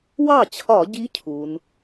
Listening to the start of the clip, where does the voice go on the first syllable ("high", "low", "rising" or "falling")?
falling